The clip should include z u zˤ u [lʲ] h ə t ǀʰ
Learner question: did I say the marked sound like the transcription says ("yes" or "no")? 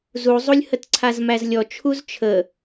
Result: yes